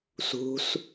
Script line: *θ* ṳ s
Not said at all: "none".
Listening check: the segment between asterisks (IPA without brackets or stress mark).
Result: s